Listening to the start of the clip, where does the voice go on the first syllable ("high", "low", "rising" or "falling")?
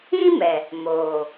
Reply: high